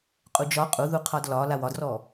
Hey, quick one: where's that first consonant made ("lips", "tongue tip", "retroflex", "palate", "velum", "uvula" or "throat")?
uvula